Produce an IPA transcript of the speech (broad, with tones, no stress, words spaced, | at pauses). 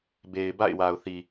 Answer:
be˨ɪ̯ ba̰˦˨ɪ̯wa˨ʊ̯θi˨